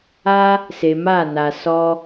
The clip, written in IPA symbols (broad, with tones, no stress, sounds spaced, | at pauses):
a˦ | s e˨ m a˦˨ n a˨ s ɔ˧